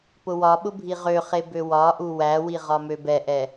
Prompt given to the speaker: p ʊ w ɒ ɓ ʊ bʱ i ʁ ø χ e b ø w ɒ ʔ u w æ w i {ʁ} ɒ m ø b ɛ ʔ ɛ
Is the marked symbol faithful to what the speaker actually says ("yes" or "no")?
yes